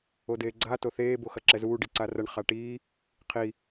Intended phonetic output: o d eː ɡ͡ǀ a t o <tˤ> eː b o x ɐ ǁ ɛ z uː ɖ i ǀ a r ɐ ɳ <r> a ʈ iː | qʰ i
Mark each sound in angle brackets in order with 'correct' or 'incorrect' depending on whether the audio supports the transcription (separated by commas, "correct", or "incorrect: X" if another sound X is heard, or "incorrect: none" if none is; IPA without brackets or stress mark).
incorrect: θ, incorrect: χ